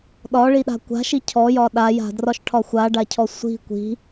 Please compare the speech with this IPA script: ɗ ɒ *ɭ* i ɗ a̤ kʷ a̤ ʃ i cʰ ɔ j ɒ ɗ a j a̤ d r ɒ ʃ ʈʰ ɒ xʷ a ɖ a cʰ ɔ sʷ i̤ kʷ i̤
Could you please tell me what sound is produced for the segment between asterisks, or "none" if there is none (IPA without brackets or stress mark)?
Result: ɭ